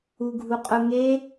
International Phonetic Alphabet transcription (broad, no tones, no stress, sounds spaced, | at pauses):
u ɡʱ u qʼ ʊ ŋ e